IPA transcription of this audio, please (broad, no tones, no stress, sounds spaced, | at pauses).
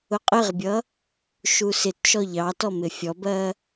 ʊ qʼ ɪ ʁ bʲ ʌ | ʃ u s ɪ t ʃ ɔ ʎ ɑ t ɔ m ɪ fʲ ɔ b ɜ